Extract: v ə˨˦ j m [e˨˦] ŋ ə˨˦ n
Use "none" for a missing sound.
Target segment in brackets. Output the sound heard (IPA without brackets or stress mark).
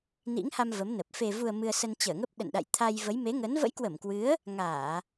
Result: e˨˦